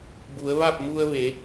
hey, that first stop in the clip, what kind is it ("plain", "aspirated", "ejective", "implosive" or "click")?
plain